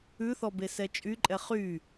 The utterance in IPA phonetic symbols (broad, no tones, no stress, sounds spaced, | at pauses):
ʉ θ ɔ b e s ɛ t͡ʃʼ y ǃʼ ɛ χ y